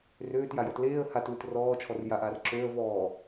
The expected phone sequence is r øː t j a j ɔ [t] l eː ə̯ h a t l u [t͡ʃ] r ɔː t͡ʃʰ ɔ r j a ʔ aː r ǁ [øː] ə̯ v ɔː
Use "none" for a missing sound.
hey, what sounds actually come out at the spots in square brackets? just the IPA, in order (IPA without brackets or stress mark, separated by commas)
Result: t, t, øː